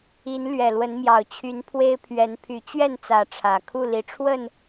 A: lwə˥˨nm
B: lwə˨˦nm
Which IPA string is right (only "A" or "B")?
B